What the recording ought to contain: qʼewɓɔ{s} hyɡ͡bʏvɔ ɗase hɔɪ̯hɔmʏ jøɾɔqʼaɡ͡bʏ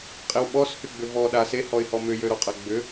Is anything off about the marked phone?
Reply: no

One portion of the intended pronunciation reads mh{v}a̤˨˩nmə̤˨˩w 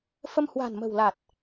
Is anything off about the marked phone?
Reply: yes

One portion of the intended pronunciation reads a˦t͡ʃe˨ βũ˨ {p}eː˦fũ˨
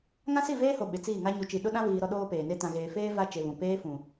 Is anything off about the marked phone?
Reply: no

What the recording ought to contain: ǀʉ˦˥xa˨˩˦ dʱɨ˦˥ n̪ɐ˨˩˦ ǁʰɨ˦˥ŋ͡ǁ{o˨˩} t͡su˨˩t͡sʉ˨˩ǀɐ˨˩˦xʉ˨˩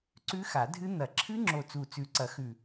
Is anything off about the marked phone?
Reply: no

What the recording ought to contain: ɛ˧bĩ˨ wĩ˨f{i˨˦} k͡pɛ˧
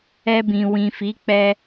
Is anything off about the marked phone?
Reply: no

